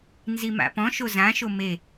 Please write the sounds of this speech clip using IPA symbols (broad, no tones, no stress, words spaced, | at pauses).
nzima̰pɔ̃ʃo zãʃo me